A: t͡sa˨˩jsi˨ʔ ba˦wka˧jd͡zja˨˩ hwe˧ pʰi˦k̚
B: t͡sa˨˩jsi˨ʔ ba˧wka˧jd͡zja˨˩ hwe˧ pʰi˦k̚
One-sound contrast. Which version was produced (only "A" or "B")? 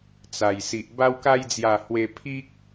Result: B